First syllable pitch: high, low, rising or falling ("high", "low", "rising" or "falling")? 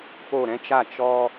falling